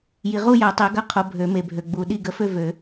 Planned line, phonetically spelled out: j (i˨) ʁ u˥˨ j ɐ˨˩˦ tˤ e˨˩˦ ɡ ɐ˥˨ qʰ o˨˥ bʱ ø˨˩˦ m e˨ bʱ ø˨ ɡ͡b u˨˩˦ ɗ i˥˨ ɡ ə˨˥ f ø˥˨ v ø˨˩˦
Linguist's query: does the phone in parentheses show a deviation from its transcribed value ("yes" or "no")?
no